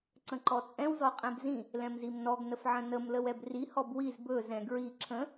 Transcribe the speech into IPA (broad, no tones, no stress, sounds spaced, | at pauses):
ǀ ə̃ ǃ ɔ t͡sʼ ɛ̃ w z ɔ qʼ ɛ̃ b z ĩ | l ɛ̃ m z i m n ɔ ɡ n ə f ʕ ə̃ n ə m l ə w ɛ b r i h ɔ b w i z b ɵ z ɛ̃ ɡ ɹ i ǁʰ ə̃